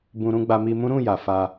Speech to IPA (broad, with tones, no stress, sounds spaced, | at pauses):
b ũ˧ ɾ ũ˦ ɡ͡b a˧ m i˧ m ũ˦ ɾ ũ˦˨ j a˨ f a˧